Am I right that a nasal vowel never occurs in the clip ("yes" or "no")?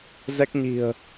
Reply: yes